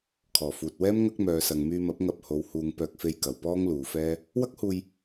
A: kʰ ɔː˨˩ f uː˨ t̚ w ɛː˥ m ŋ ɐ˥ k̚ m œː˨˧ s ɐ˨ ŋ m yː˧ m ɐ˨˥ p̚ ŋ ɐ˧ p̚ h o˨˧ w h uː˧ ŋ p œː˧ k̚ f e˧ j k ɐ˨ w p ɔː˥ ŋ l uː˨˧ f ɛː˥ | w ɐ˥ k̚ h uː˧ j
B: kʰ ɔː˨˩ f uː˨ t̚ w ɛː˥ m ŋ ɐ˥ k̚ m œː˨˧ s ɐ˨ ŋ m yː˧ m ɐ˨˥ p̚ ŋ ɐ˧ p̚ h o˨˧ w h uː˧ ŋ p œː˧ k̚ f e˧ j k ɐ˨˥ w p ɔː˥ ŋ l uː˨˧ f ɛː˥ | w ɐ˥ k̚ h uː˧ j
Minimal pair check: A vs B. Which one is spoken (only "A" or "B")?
A